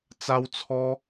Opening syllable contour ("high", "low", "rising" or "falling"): high